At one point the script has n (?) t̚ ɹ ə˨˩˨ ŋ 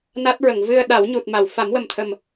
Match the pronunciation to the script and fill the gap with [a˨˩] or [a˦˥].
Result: a˦˥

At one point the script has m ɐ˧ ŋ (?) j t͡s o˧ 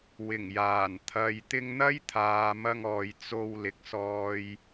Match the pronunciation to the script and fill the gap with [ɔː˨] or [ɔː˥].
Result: ɔː˨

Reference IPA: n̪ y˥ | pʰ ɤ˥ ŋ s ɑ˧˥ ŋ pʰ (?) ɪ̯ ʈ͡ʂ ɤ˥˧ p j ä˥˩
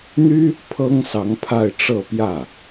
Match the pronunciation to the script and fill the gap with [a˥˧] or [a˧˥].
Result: a˥˧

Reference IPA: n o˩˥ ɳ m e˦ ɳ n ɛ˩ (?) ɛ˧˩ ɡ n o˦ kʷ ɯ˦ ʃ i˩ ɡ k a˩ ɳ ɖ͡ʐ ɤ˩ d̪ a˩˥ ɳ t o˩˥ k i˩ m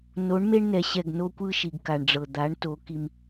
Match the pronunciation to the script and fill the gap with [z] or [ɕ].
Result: ɕ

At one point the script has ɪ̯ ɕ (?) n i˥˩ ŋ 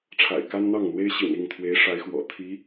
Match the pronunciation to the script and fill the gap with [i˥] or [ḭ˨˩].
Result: ḭ˨˩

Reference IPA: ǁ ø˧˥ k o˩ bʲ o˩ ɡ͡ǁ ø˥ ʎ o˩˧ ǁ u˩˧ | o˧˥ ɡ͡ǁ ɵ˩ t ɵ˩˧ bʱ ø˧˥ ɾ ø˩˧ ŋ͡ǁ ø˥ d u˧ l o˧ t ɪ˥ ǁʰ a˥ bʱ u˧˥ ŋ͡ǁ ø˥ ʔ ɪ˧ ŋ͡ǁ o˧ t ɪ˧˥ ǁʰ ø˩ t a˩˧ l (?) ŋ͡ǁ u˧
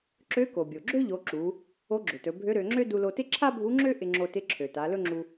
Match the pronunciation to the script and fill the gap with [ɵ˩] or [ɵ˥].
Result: ɵ˥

